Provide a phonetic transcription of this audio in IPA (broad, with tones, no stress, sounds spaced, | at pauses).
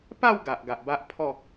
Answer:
p a˥˧ w ɡ a˨ ʔ ɡ a˨ ʔ b a˦ ʔ pʰ ɔ˥˧